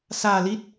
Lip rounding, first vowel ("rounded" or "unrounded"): unrounded